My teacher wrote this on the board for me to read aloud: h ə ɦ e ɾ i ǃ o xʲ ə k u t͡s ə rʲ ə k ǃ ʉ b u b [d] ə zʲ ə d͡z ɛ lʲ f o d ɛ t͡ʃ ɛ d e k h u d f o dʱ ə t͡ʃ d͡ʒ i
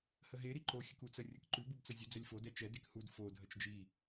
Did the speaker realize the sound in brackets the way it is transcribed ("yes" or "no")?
no